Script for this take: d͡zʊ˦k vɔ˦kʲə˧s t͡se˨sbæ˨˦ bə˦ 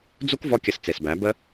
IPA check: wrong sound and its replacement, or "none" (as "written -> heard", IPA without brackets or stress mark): ʊ˦ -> u˦